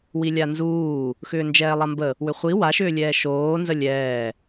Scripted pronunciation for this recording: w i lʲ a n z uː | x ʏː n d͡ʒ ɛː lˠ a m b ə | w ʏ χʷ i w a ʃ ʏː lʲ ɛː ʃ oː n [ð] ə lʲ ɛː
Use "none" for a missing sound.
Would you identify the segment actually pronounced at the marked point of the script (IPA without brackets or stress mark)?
z